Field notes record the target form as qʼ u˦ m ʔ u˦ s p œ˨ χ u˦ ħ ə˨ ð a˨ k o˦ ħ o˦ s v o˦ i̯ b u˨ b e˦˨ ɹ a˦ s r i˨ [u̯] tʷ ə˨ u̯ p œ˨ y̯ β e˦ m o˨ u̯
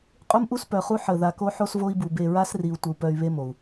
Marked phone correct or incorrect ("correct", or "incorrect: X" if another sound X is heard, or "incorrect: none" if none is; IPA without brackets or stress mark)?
correct